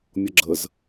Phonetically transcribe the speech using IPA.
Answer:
mʲ ʌ ɡ͡ǁ ə z

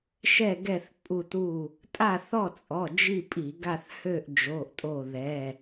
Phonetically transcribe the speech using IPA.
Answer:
ʃ ɛ˥˨ ɡ ɛ˥˨ θ pʼ u˧˩ t u˧˩ | tʼ a˥˨ θ ɔ˥˨ t͡sʼ ɔ˩˧˩ d͡ʒ i˥˨ pʼ i˧˩˧ ɡ a˥˨ θ h ø˥˨ ʔ d͡ʒ o˩˧˩ ʔ tʼ o˧˩ ð ɛ˩˧˩

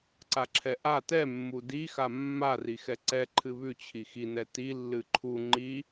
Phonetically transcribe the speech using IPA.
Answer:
ǀ a ǁʰ ɛ ʔ a t ɛ mː u d i x a mː a r i x ɛ ǀ ɛ ǃʰ ɨ β ʉ t͡ɕʰ i x i n ɛ t i lː ɨ ǃʰ u ŋ͡ǃ i

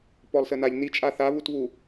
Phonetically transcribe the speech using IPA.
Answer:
p ɔ lˠ s ə n a ʎ n i t͡ʃʼ a θ a β u t β u

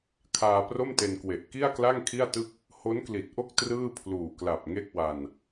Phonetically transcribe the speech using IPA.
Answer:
kʰ aː˧ p r o˥˩ m t e˧ n k w e˨˩ ʔ k i˥˩ a̯ k l a˥˩ ŋ kʰ i˥˩ a̯ t ɯ˥˩ k̚ | h o˦˥ n k l i˨˩ t̚ ʔ o˥˩ k̚ t r ɯː˥˩ pʰ l uː˨˩ k l a˨˩ p̚ ŋ e˥˩ k̚ w a˧ n

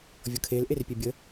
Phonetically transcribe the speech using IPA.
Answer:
vʲ ɤ kʰ e l ʔ e r pʲ ɛ bʲ ə

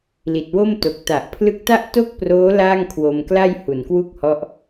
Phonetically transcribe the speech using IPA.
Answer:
l i˨˩ t̚ w o˥˩ m t o˨˩ k̚ t a˨˩ ʔ pʰ l ɯ˦˥ k̚ t a˥˩ ʔ t o˥˩ k̚ p r oː˦˥ l aː˥˩ ŋ kʰ w o˧ m k l a˥˩ j h u˨˩ n k w u˥˩ k̚ h ɔ˦˥ ʔ

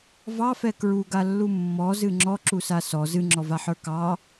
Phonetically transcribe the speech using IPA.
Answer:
v ɑ f ɛ k ɹ u ɡ a lː u mː ɔ z ɨ ŋ͡ǁ ɔ ǁ u s a s ɔ z ɨ ŋ͡ǁ ɔ v a ħ ə˞ k ɑ

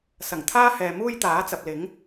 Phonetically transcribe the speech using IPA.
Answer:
s ɐ˨˩ ŋ t̪ʰ aː˥ h ɛː˨ m uː˥ j t̪ aː˨˥ t͡s ɐ˨ p̚ l ɪ˨˥ ŋ

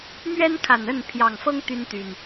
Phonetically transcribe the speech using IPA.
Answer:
m ɥ ɛ˦ n kʰ a˨˩ n ə˥˨ n pʰ j ɑ˨˩ ŋ f ɤ˦ ŋ t̪ y˦ n t̪ y˨˩ n

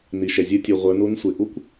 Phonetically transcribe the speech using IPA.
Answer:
n i˩ ʃ ɛ˩ zʲ o˧ tʲ u˩ ʁʷ ə˞˩˧ n u˧˥ n sʷ e˩ ʔ u˥ kʷ

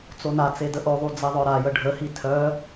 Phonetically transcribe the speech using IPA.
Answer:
t͡s o n a t͡s e d ə ʔ o ðˤ u d͡z e ðˤ œ ɾ a j ə ɖʱ ə h i tʰ œ

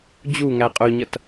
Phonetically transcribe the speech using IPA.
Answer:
d͡ʑ u ŋ æ qʼ ʊ ɲ ʌ t

